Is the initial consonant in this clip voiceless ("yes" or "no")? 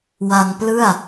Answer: no